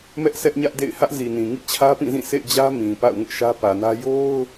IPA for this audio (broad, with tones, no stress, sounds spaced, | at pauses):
m ɛ˦ ʔ s ɛ˦ ʔ ɲ ä˦ ʔ d ḛ˦˨ ɪ̯ h ä˦ ʔ z i˨ n ĩ˨ ŋ ḭ˦˨ t͡ɕʰ ä˦ p ĩ˦˨ z ĩ˦˨ sʰ ḛ˦˨ ɪ̯ d͡ʑ ä˦ m ĩ˨ p a̰˦˨ ʊ̯ ŋ ʊ˦ ʔ ʃ ä˦ p ä˨ n ä˦ j o˦ ʊ̯